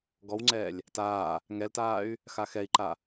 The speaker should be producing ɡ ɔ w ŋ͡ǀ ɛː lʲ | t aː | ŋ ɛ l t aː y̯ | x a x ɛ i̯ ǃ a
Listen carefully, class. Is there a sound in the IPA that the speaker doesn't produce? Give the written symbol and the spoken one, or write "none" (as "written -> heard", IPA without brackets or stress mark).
none